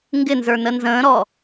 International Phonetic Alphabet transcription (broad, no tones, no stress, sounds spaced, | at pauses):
ŋ ɡ ɪ n z ə˞ n ə n z ə̃ː ɾ ɔ